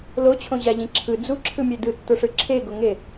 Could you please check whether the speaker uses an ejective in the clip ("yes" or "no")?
no